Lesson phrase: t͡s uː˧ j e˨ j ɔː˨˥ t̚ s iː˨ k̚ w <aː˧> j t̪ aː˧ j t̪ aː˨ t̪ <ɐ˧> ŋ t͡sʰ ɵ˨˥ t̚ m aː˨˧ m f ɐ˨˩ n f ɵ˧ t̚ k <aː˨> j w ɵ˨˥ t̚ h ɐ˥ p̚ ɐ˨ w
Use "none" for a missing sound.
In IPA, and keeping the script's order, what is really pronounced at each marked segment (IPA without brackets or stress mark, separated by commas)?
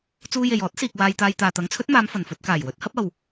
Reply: aː˧, ɐ˨˥, aː˨˩